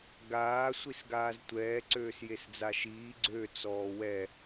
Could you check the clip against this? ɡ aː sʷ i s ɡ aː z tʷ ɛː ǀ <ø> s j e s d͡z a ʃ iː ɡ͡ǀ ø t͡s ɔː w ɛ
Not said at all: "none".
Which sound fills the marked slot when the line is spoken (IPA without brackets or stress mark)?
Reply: øː